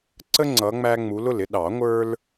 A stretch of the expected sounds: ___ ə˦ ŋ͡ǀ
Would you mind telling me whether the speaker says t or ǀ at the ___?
ǀ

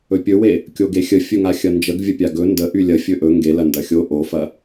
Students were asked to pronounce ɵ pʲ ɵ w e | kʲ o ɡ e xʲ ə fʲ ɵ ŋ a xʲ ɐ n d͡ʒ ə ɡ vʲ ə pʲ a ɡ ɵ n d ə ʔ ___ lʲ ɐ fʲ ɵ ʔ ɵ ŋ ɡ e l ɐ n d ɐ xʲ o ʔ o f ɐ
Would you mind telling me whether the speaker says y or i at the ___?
y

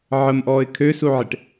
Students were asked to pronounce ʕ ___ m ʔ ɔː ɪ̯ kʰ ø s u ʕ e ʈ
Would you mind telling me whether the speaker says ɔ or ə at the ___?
ə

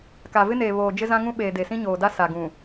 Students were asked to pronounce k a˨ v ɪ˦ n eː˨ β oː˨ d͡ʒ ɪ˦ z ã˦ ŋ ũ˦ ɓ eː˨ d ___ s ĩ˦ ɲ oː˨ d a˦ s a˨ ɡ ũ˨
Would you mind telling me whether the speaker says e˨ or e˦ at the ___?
e˨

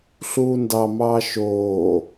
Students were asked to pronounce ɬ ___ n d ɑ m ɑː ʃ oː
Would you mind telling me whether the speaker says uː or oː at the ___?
uː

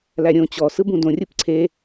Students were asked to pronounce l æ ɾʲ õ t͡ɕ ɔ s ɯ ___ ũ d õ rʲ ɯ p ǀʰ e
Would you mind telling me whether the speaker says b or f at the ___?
b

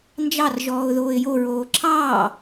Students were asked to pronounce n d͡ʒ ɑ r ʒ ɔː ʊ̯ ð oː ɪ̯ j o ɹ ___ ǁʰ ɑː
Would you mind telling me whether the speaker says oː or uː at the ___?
oː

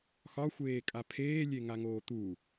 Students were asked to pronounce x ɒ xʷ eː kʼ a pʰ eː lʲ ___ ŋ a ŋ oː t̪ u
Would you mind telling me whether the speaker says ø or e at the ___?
e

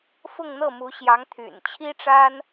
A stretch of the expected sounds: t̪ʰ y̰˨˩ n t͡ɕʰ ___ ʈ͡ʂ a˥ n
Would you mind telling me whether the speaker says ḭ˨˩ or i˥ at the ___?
i˥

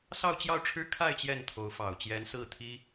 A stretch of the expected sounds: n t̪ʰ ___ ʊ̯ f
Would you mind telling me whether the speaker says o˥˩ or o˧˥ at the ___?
o˧˥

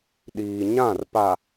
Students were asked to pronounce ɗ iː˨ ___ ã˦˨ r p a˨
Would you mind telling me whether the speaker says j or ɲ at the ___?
ɲ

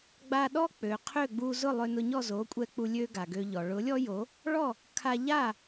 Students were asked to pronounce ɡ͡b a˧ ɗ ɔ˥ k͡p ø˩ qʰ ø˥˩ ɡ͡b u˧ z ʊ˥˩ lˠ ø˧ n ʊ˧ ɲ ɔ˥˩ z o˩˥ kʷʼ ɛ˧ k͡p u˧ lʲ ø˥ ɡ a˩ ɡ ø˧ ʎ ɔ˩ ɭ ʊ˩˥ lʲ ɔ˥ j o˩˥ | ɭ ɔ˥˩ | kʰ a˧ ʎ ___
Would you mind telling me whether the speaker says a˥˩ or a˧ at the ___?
a˥˩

